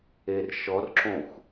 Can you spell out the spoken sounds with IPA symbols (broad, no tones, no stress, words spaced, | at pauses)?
erʃɔrǁõxʷ